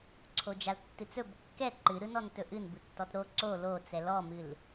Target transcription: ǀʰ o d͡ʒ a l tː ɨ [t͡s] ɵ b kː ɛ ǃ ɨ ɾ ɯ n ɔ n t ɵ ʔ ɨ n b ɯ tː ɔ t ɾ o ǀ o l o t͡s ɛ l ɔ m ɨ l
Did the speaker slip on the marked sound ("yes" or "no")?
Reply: no